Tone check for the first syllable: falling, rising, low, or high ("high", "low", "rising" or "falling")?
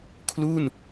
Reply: falling